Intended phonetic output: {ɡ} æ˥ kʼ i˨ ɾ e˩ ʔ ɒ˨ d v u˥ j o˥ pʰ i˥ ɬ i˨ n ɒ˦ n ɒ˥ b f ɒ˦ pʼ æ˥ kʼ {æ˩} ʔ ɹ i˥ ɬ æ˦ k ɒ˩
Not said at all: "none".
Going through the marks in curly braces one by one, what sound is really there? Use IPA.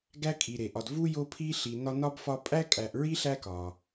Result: ɡ, æ˨

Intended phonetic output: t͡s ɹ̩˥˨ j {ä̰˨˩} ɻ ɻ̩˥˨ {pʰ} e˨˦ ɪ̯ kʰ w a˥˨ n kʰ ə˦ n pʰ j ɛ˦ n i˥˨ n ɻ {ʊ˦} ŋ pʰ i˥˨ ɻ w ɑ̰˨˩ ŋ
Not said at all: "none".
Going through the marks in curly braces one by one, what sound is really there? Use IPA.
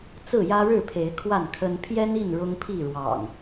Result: ä˦, pʰ, ʊ˦

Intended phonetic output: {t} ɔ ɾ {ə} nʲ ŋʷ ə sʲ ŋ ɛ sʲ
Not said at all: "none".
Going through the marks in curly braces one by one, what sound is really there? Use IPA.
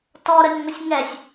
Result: t, ə

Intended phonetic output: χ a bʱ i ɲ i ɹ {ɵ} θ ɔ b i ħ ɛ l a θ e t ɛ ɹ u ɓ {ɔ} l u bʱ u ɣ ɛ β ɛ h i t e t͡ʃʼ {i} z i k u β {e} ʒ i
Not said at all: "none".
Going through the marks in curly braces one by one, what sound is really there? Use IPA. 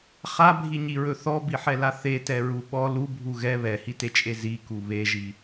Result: ɵ, ɔ, e, e

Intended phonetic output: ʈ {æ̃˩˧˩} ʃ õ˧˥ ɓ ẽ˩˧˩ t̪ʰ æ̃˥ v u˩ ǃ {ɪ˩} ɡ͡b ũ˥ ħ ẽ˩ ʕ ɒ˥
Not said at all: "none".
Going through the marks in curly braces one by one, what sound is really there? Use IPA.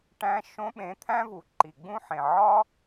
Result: æ̃˧˥, i˩

